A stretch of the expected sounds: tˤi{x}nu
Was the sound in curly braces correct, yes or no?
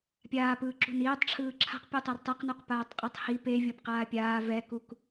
no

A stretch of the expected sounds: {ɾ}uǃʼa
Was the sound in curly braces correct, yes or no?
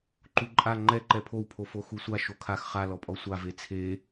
no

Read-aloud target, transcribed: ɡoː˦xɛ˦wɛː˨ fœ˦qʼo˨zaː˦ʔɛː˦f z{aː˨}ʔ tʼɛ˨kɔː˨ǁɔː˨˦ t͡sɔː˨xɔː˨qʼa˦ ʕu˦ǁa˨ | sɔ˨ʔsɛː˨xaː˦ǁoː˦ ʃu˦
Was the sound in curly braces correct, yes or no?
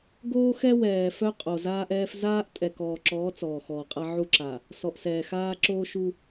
no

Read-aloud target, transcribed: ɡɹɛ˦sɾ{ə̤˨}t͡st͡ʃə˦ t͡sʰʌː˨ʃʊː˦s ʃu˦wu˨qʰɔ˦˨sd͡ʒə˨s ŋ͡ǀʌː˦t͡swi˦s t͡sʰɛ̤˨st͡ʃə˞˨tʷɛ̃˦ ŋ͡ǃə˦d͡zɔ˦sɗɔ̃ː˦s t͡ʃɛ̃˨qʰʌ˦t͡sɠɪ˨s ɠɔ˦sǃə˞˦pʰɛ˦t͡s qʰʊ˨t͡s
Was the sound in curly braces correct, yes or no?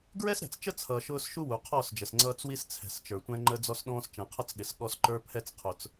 no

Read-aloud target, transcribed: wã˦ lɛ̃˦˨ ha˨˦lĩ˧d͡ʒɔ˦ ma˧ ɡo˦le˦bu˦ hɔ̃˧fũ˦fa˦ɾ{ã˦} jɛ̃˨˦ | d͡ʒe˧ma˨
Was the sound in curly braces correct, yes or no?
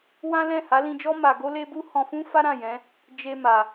no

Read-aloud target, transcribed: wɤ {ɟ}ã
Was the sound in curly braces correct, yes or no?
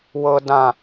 no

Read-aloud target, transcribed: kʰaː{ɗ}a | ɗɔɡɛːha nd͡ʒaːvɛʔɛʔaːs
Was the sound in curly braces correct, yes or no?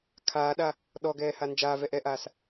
yes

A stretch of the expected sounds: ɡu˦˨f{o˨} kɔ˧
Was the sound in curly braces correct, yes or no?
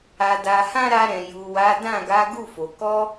yes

